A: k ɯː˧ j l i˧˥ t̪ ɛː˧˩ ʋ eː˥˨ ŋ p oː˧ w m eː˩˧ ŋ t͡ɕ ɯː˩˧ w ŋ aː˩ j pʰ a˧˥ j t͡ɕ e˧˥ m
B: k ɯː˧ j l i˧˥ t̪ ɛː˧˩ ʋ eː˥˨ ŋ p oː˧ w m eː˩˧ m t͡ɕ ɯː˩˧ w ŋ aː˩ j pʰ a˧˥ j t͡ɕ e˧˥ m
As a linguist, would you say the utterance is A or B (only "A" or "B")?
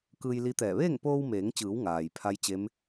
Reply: A